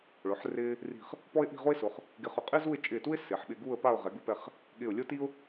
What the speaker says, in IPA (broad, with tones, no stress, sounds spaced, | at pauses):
ɭ ʊ˩˧ ħ r ɪː˧ | r i̤˧˩ χ | p ɔ˥ ɪ̯ ʔ i̤˥˧ ʁ o˥ ɪ̯ s ʊ˩˧ χ | ɡ ɪ˧ χ ʊ˧ qʼ ɪː˥ z u˥˧ ɪ̯ t͡ʃʼ ɪː˧˩ t u˥ ɪ̯ s ɪː˩˧ ħ ɓ ɪː˧ ɡ uː˥˧ ə̯ p a˥˧ ʊ̯ ʁ ɛ˩˧ ɡ u˧ p ɛ˧˩ χ | ɠ ɪ˧˩ ʊ̯ lʲ o˥ t i˥ ʊ̯